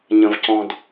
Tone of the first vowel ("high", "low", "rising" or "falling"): low